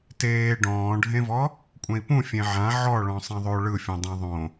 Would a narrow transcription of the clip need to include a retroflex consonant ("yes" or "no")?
yes